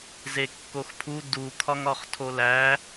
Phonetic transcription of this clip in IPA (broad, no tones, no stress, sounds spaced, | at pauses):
z e kː o x pʰ u d u kʰ ɒ ŋ ɒ χ tʰ o l æ